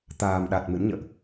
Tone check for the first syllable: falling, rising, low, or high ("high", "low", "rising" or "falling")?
low